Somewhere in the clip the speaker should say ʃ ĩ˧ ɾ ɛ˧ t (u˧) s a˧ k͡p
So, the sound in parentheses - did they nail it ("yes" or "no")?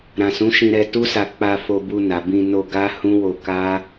no